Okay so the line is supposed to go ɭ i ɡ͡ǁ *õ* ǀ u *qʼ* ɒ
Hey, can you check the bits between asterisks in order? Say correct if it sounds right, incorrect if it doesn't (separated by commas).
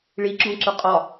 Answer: correct, correct